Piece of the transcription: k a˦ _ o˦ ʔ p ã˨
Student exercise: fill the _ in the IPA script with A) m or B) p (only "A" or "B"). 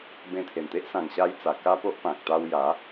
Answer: B